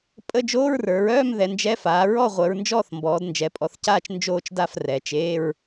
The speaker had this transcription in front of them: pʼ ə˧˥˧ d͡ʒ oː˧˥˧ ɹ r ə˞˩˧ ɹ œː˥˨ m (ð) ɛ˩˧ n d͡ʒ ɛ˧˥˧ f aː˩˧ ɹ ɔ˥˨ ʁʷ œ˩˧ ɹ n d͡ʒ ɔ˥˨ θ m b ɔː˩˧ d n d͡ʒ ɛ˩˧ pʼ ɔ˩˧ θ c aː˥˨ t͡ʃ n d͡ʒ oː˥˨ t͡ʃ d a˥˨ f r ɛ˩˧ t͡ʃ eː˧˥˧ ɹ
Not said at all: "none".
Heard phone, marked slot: ð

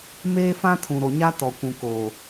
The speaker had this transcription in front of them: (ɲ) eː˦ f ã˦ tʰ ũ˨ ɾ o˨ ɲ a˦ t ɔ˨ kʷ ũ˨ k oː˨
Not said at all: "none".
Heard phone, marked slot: m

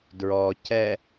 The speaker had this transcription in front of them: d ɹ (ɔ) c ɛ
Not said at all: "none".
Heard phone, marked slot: ɔ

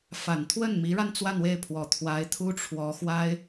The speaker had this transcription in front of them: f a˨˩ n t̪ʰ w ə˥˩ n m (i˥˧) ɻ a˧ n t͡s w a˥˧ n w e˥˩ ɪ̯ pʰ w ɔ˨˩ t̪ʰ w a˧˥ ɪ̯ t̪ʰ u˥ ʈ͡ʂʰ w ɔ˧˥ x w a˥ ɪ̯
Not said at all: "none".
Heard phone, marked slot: i˧˥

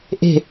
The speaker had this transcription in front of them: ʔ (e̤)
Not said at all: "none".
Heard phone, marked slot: e̤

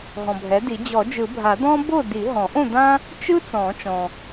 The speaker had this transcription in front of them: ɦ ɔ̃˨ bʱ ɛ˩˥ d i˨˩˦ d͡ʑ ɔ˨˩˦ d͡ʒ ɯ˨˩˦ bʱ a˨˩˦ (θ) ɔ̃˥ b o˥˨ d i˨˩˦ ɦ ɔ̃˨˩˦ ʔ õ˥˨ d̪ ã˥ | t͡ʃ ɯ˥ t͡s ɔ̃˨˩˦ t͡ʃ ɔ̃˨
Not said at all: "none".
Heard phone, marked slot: d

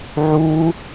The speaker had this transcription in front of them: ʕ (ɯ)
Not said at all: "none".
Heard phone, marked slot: u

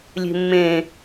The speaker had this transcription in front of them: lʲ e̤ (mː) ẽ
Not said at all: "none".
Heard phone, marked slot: mː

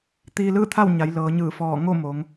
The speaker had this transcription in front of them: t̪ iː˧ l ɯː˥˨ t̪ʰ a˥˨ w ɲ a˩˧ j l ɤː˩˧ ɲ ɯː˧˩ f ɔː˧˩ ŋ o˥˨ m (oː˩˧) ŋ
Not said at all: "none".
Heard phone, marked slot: oː˩˧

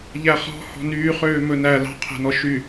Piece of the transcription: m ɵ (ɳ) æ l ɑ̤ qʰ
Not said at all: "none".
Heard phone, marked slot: n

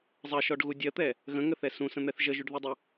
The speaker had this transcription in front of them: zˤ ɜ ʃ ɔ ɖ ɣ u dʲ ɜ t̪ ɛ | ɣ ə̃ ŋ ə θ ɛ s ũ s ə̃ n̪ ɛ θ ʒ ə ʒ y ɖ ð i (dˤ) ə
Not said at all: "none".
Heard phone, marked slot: dˤ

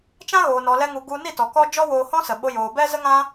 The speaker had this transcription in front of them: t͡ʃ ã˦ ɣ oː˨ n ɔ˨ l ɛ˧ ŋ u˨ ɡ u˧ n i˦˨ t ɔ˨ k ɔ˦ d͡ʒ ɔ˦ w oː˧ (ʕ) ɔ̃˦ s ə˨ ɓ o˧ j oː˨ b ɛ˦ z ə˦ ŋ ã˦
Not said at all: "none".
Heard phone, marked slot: h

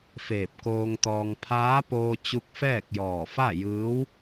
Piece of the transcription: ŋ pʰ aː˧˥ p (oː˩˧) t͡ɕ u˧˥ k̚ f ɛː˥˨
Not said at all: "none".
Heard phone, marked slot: oː˧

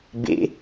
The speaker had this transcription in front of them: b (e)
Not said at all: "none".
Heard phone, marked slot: ḛ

